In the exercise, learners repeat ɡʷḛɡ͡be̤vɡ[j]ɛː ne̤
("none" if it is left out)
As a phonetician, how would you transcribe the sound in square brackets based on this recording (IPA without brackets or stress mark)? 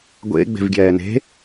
j